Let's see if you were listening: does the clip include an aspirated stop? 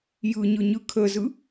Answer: yes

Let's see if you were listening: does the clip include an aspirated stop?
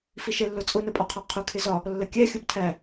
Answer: yes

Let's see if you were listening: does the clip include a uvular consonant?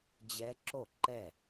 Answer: no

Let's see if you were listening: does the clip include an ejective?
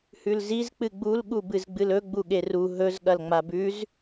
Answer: no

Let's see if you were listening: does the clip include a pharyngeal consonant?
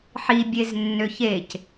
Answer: yes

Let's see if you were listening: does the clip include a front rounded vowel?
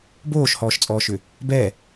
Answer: yes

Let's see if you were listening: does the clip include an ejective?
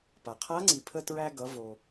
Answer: no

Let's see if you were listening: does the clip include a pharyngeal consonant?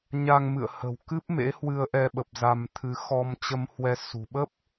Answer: no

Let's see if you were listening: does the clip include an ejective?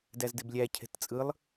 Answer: yes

